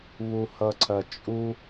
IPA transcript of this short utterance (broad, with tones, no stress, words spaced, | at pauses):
βu˧hʌ˧ǀʰɐ˧ t͡ʃʼu˥